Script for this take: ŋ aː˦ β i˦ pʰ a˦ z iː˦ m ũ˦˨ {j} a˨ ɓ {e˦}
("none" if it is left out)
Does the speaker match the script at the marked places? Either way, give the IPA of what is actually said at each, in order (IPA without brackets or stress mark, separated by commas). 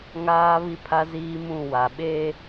w, e˦